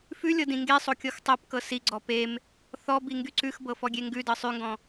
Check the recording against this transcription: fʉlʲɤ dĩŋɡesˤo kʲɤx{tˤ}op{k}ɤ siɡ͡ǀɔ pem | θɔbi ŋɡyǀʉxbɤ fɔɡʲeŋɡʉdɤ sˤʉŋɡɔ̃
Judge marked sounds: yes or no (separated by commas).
yes, yes